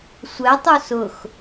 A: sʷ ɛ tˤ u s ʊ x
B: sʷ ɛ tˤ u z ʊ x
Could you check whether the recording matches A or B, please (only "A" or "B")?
A